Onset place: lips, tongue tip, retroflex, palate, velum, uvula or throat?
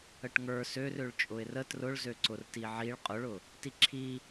retroflex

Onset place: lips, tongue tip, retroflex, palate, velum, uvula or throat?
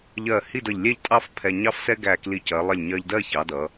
palate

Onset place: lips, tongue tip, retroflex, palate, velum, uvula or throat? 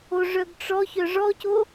retroflex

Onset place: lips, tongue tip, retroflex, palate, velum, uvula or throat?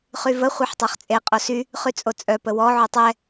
uvula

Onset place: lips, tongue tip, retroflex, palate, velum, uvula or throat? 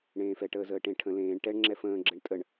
retroflex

